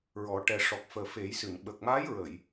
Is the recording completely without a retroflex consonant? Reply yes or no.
no